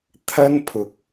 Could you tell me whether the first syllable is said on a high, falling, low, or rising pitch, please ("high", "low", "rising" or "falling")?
high